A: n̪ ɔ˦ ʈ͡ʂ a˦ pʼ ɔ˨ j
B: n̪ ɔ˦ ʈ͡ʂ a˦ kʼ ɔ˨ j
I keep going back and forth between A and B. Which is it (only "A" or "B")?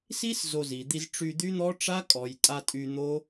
B